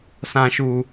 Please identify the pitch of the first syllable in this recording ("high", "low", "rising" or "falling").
low